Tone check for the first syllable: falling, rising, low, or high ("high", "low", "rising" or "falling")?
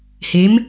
rising